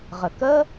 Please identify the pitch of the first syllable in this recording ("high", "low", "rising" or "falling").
low